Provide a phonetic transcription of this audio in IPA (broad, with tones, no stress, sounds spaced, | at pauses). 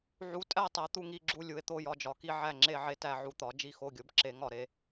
ʕ u˨˥ tʼ æ˥˨ tˤ æ˨˥ t̪ u˥˨ ŋ i˥˨ ɡ͡ǁ u˥˨ lʲ u˨˥ e̯ t̪ o˥˨ j ɒ˥˨ d͡ʒ ɒ˨˥ k i˥˨ ʕ æ˥˨ ŋ͡ǁ e˥˨ ʕ e˥˨ t æ˥˨ ʕ u˧˥˧ t̪ ɒ˨˥ d͡ʒ i˥˨ x o˥˨ ɡʲ o˨˥ b ǁ e˨˥ ŋ ɒ˥˨ ɾ e˨˥